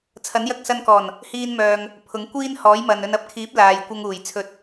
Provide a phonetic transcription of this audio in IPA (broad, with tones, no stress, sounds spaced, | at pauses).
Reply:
t͡sʰ ɐ˨˥ n j ɐ˧ k̚ s ɐ˧ n k ɔː˨˩ n | h iː˧ n m œː˨ ŋ | pʰ ʊ˨˥ ŋ kʷ iː˥ n h ɔː˨˥ j m ɐ˨ n ɵ˧ n ɐ˥ p̚ kʰ iː˨˥ p̚ l aː˨ j kʷ ɐ˧ ŋ uː˨˩ j t͡sʰ ɵ˨˥ t̚